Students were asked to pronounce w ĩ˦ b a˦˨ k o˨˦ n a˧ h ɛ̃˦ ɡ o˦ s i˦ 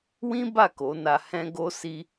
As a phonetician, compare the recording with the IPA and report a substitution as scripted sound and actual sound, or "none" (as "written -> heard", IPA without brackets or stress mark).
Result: none